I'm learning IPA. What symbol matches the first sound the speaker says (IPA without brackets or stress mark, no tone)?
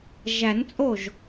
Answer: ʒ